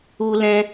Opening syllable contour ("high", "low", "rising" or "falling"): high